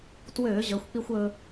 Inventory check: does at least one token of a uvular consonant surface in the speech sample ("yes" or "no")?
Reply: no